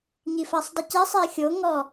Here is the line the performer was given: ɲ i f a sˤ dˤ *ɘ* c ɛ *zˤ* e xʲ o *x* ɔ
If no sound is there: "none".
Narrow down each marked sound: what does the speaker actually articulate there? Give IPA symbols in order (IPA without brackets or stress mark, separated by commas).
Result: ɘ, sˤ, ŋ